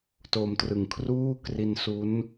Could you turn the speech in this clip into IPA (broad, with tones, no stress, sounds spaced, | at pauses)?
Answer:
t o˧ m t r ɯ˨˩ ŋ kʰ r uː˥˩ k r i˧ n s u˦˥ n